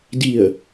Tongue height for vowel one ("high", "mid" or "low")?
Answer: high